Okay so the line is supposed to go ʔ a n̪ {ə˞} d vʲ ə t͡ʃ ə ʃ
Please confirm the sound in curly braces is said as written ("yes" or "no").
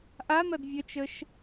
no